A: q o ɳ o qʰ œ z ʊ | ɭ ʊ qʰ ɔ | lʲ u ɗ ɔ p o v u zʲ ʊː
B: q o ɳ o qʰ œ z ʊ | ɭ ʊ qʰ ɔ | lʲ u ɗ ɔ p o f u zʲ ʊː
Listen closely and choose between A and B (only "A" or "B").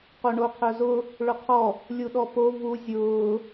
A